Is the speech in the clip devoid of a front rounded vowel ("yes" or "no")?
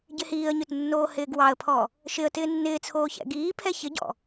no